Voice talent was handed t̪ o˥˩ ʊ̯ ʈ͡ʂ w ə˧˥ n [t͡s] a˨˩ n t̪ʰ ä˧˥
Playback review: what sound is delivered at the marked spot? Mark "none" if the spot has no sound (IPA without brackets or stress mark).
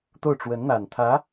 n̪